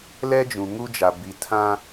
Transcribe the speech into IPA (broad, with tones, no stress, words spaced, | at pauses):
lɛ˦d͡ʒũ˨ŋu˦d͡ʒa˨ bi˨tʰã˦